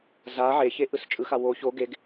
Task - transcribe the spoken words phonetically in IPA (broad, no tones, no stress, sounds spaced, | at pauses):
z a ʕ e ç e ʔ ɯ s t͡ʃʼ ɯ x a w o ç o ɡ e ɡ